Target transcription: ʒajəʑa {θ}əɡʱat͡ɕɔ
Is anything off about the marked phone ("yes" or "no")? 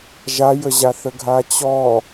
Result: no